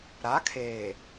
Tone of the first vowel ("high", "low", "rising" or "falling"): rising